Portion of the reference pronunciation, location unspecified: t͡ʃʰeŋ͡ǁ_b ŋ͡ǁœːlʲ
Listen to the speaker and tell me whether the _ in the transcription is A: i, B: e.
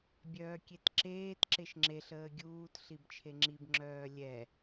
A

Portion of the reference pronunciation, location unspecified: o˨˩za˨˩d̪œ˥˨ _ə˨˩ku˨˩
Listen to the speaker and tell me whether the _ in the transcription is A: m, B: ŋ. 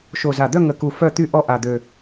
B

